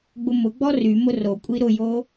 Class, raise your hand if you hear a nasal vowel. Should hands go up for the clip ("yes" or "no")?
no